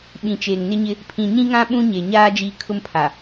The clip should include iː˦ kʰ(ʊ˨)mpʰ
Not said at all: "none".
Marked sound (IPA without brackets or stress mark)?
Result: ʊ˦